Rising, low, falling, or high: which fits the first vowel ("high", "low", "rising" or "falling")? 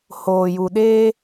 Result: low